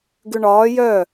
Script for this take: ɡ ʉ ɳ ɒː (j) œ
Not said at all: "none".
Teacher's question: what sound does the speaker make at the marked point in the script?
j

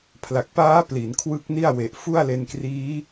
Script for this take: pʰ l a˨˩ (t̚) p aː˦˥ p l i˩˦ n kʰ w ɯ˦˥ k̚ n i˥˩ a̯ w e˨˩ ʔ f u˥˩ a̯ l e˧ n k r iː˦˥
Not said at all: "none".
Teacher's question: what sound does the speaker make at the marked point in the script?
k̚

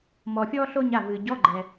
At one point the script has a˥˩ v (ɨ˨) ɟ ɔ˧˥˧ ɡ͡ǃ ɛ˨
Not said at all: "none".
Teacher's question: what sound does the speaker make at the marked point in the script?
ɨ˨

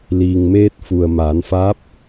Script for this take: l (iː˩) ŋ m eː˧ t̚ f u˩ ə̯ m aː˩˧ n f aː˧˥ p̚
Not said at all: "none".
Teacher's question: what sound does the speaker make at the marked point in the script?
iː˩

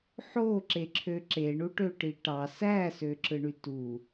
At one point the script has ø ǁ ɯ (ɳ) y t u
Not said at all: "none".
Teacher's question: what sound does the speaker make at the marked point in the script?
ɳ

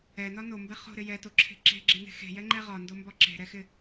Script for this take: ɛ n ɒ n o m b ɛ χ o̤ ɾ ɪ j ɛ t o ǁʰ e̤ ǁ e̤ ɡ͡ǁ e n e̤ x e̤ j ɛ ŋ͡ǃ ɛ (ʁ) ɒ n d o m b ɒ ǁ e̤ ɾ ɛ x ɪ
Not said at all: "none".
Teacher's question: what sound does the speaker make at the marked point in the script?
ʁ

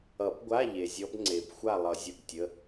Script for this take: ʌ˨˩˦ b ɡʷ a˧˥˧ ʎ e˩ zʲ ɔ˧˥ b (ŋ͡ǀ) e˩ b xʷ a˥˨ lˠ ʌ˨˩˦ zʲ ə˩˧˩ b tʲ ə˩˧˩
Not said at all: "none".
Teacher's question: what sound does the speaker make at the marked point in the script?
ŋ͡ǀ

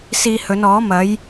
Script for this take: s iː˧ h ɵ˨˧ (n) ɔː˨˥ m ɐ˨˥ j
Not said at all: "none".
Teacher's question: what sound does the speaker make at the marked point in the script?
n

